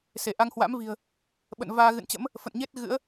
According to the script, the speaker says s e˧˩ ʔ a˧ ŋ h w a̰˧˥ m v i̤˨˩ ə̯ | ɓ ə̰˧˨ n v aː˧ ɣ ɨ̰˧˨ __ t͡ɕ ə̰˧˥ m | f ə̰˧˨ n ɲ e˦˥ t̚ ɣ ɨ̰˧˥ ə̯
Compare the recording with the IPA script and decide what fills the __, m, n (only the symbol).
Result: n